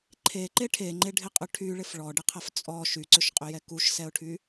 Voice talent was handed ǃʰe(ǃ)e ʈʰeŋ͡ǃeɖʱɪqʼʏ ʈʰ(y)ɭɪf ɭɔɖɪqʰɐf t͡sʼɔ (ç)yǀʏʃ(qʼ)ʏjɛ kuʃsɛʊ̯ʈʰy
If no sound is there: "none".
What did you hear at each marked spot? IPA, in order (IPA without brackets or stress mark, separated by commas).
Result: ǃ, y, ʃ, qʼ